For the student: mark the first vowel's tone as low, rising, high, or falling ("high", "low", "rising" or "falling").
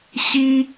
high